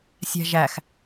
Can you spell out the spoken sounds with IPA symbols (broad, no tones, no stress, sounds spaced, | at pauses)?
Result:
sʲ æ̤ ʒ æ x